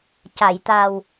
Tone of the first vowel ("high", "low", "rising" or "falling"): low